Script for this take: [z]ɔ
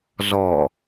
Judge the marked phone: correct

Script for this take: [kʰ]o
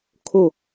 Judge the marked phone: correct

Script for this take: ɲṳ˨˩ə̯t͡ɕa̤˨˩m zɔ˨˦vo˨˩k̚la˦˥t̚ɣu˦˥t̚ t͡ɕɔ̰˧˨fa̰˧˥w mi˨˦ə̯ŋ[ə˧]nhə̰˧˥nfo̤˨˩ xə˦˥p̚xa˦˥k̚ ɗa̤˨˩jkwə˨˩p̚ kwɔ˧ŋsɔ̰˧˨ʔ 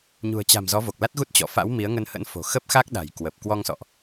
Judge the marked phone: correct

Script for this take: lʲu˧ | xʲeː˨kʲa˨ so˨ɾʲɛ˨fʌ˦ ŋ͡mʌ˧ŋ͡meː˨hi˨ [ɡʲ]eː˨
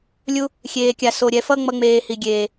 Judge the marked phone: correct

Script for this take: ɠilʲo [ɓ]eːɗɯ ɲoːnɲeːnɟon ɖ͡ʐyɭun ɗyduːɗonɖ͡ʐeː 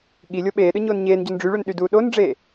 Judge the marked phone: correct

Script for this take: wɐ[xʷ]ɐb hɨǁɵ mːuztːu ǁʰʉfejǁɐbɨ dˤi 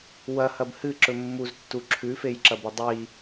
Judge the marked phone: incorrect: h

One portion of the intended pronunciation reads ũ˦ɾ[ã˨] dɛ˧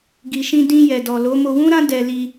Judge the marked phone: incorrect: ã˦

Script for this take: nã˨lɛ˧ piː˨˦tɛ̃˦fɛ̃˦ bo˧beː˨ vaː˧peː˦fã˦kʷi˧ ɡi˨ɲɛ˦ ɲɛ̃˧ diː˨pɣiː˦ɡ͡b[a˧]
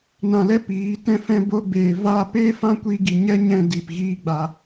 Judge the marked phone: correct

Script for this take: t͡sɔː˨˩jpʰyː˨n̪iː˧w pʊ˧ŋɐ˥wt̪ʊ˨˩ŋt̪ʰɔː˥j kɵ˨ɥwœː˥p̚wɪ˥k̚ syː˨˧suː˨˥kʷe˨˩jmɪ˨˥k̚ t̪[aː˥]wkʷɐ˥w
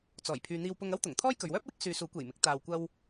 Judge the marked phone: incorrect: aː˧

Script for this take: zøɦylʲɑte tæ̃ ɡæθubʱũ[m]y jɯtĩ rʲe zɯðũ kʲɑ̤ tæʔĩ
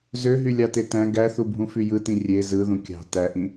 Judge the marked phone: incorrect: f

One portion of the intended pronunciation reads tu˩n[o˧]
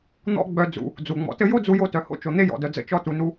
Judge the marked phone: incorrect: u˧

